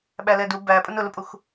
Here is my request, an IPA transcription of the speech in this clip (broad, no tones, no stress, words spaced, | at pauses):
ɓælɛdu bæpʼʊn ʊlʊpʼux